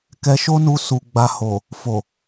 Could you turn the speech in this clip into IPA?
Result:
k ɛ˧ ʃ o˦ n u˧ s u˨ ɡ͡b a˧ h o˨ | f o˨

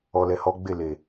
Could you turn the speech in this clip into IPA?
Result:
ɔ˨ l ɛ˨ h ɔ˨˦ ɡ͡b e˦˨ l e˨

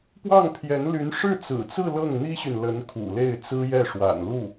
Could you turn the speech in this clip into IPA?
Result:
p w ɑ˥˩ ŋ pʰ j ɛ˧˥ n l y˧˥ n ʂ ɻ̩˥˩ t͡s ɹ̩˨˩ t͡s ɹ̩˥˧ l ɤ˥˩ ŋ n̪ i˥ ɕ y˨ n l ə˧˥ n kʰ ṵ˨˩ l e˥˩ ɪ̯ t͡s ɹ̩˥ j ɛ˥˩ ʂ w a̰˨˩ n l u˥˩

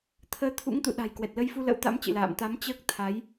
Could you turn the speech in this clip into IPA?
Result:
t̪ʰ əː˨˦ t̪ʰ ṵ˧˥ ŋ t̪ ṵ˧˨ ɗ a̤˨˩ j k w ɛ˨˩ t̚ l ə˨˦ j f u˧ l ə̰˧˥ w t̪ a̰˧˥ m t͡ɕ ɨ̰˧˨ l a̰ː˧˨ m t̪ a˨˦ m t͡ɕ əː˦˥ k̚ t̪ʰ a˨˦ j

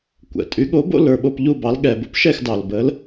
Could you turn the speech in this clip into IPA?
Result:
kʷ ɛ̰˩ tʼ y˩˥ ɠ o˩˥ b o̰˥˩ l ə˞˥˩ ɓ o˥˩ p ʎ u˥˩ b ɑ˩˥ l ɠ ɛ˩ b o̰˥ p ʃ ɛ˥˩ x d ɑ˩ l b ə˩˥ l

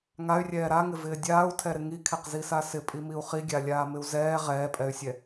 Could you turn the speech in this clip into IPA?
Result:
ŋ a y̯ rʲ ɛː ɾ a ŋ ɪ v ɪː dʲ aː u̯ tʰ ɛ ɾ ɪ ŋ i kʰ ɛ q z i s a s ɪ pʼ i m i u̯ χ i ɡʲ a lʲ aː m ɪ u̯ z ɛː ʁ ɛː pʼ ɛ y̯ sʲ ɛ

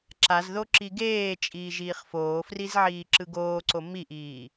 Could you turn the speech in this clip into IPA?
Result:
ǁ a z ð o ǁ i ɡ eː t͡ʃʼ iː ʒ iː χ f oː f r i z ʕ iː ǁ ɯ ɡ oː ǀ o m i ʔ iː

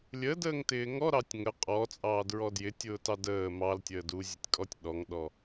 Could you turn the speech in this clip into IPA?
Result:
lʲ ə d əː ŋ t ɪː ŋ ɔ ɾ ɑ tʲ ŋ ə qʼ ɔ t͡sʼ ɑː d ɹ ɔ d j ɪ tʲ ʊː t ɑ d əː m ɑ l tʲ əː d u zʲ ʊ tʲ kʼ ɔ tʲ ɗ ɔ ŋ ɗ ɔ

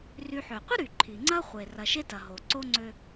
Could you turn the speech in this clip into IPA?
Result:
r y˨ ħ ø˩ qʷ ə˥ ɾ y˩ ǃʰ i˩ ŋ͡ǀ ɐ˥ χʷ e˩ r ɐ˩ ʃ e˦ t ɐ˩ ɦ o˩ ǀ o˥ ŋ͡ǀ ø˦

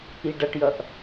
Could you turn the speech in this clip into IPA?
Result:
i ɖ ʌ ʈ j ʌ ʔ

